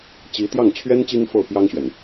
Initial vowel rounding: unrounded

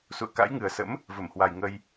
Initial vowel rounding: rounded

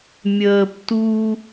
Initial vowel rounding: unrounded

